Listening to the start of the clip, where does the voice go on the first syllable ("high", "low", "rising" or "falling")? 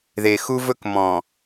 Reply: low